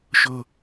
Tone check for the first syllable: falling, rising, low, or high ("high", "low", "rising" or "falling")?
high